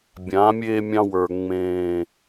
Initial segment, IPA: bʲ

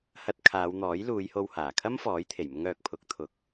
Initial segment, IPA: h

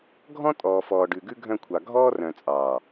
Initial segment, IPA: ɡʱ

